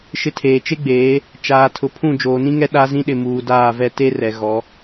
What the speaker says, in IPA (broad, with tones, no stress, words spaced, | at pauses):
ʃɪ˦tʰeː˨ t͡ʃe˦ɡ͡beː˨˦ | t͡ʃaː˨tʰʊ˨pʰũ˦˨ d͡ʒoː˨nĩ˦ŋɛ˦ ɗa˦zĩ˦ɗɪ˨ muː˨daː˦˨vɛ˦ te˦rɛ˨ ɣɔ˨˦